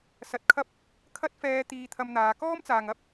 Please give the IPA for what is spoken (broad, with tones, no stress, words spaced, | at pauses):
sɐ˧t̚kʰɐ˥p̚ | kʰɐ˥t̚fɛː˧ t̪iː˧t̪ʰɐ˧mn̪aː˨˧ kɔː˥mt͡saː˨ŋ ɐ˧p̚